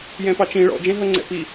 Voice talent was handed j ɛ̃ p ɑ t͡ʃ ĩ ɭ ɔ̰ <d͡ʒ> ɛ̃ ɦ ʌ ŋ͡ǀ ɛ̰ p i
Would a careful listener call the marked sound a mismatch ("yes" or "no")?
no